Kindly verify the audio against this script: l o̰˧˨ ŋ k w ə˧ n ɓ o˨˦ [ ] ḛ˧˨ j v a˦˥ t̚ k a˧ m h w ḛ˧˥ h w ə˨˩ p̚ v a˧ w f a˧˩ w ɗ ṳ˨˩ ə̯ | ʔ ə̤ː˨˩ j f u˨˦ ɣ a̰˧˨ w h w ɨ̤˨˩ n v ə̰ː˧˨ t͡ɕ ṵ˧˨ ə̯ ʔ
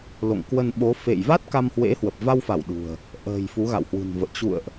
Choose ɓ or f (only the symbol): f